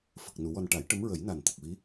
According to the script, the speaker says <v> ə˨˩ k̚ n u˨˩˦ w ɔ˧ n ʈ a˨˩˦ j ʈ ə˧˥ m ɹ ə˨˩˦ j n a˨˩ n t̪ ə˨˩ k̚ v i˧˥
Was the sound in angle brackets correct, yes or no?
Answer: no